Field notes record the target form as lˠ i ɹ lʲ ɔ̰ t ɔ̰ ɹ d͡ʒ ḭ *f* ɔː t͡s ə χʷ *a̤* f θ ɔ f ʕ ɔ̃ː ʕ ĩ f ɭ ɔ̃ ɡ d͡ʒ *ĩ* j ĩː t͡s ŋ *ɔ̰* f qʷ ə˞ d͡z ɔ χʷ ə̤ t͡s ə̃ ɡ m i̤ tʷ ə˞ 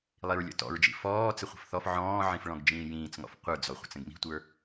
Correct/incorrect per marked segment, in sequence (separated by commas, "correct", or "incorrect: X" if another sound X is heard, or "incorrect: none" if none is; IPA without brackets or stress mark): correct, incorrect: ə̤, incorrect: ĩː, correct